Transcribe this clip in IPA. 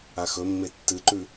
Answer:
a x ɵ mː e tː ɨ ǃ ʉ

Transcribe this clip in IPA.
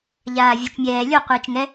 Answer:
ʎ aː vʲ o t͡ʃ mʲ ɛː lʲ o qʷ ɯː t͡ʃ ŋ ɛ

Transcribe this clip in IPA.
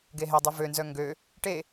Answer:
ɡ e ɦ e dˤ e v ø n z œ ŋ ɡ ø | ʈ e

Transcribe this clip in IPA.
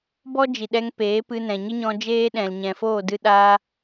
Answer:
b ɔ˦ d͡ʒ i˨ ɗ ɛ˧ ŋ p eː˨˦ p ɨ˧ n ɛ̃˨ ɲ ɨ˦ ɲ ɔ̃˧ d͡ʒ eː˦ ɗ ɛ̃˨ l ɲ ɛ̃˨ f oː˦˨ d ɨ˧ ɗ aː˧

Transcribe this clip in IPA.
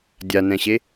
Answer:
dʲ a n ɛ̃ ɕ e

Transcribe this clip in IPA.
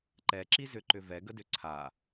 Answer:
ǃ ɛ ǁ i z ʏ ǃ ʏ v ɛ ɡ ə d ʏ ǀʰ a

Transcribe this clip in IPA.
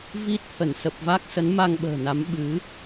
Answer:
v i˦˥ t̚ h ə˧˩ n s ə˨˩ p̚ v a˦˥ k̚ s ə˨˦ n m a˧ ŋ ɓ ə̤ː˨˩ n a˨˦ m ɓ ɨ˨˦

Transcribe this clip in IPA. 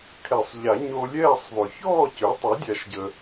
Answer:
kʰ ɛ˨˩˦ sˤ ʎ a˨˩˦ ɲ o˧ lʲ ɛː˥˨ sˤ ðˤ ø˩ ç ɔː˥˨ c ø˩˥ tˤ ø˩˥ dʲ a˨˩˦ ʃ ɟ ə˩

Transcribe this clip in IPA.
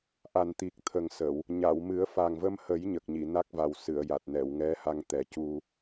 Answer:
ʔ a˨˩ n t̪ i˨˩ k̚ t̪ʰ ə˨˩ ŋ s ə˨˩˨ w | ɲ a˨˩˨ w m ɨ˨˩˦ ə̯ f a˨˩ ŋ v ə˧ m h ə˨˩˦ j ɲ ə˨˩ k̚ ɲ i˨˩˨ n a˦˥ k̚ v a˨˩ w s ɨ˨˩˨ ə̯ j a˨˩ t̚ n ɛ˨˩˨ w ŋ ɛ˧˥ h a˧ ŋ t̪ ɛ˨˩˦ c u˧

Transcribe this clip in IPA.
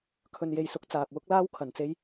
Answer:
kʰ ɵ˧ n j e˧ j s ʊ˧ k̚ t͡s aː˨ k̚ w ʊ˥ k̚ l aː˥ w kʰ ɐ˨ n t͡s e˥ j

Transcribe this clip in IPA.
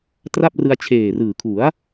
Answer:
t r a˥˩ p̚ r ɯ˧ a̯ t͡ɕʰ eː˨˩ r ɯː˨˩ kʰ u˩˦ a̯

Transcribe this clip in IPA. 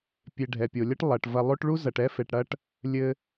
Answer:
pʲ e˨ ɖʱ ɛ˩ pʲ o˩ lʲ ɐ˥ ʈ lˠ ɐ˩ ʈ v ɐ˨ lˠ o˦ ʈ ɭ u˥ z ɐ˨ ʈ ɛ˥ f e˨ ʈ ɽ ɐ˥ ʈ | lʲ ɘ˦

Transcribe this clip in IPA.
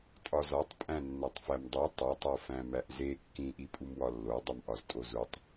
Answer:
tʼ ɒ z ɒ tˤ pʼ æ̃ nː æ tˤ f æ m dˤ o tˤ o tˤ o f æ̃ m æ ʔ z e kː ĩ ʔ i pʼ u m w ɒ lː o dˤ u m ʔ ɒ z tʼ o z u tˤ

